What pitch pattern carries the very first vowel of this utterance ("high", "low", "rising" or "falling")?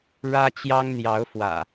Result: high